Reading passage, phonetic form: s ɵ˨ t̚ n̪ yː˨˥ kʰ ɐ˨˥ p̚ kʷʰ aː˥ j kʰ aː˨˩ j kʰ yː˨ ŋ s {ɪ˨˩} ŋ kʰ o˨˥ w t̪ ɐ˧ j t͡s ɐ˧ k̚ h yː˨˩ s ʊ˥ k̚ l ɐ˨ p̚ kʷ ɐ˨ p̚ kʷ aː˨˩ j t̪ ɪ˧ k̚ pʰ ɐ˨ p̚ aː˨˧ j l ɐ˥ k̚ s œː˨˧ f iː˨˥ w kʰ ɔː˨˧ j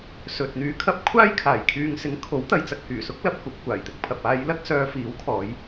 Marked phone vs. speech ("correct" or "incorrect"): incorrect